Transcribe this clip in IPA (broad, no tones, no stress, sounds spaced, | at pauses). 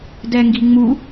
d ɛ ŋ ɡ i ŋ͡m u